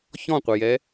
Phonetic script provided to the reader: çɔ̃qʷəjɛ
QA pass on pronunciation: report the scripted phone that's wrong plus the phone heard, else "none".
none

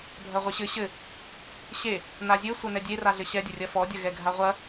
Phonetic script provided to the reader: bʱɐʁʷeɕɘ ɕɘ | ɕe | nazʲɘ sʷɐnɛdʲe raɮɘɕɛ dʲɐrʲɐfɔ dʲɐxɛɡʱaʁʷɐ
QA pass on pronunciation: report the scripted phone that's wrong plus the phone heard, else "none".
x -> ɣ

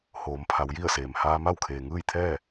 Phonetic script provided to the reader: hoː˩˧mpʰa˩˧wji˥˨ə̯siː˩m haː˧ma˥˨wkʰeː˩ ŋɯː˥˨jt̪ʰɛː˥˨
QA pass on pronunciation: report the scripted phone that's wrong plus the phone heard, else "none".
iː˩ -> eː˩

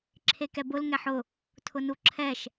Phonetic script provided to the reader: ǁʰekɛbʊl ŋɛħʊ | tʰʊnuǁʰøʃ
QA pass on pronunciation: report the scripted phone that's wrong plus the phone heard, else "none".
ø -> ɛ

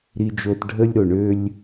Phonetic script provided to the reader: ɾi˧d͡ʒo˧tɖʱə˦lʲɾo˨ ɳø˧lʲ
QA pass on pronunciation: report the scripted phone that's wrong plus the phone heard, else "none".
none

